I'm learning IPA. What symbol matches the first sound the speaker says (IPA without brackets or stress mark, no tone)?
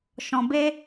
ʃ